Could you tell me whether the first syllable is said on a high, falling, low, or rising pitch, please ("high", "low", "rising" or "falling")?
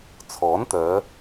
rising